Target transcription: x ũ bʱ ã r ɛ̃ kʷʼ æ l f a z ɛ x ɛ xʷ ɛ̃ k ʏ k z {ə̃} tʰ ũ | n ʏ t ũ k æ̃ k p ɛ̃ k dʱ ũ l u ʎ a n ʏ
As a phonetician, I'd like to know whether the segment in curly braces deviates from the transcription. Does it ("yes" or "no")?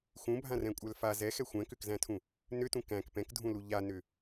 yes